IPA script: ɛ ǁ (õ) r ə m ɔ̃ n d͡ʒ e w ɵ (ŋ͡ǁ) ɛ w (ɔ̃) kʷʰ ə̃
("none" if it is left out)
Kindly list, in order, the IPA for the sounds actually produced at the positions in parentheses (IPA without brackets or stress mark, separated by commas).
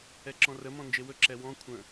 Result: ɔ̃, ǁ, ɔ̃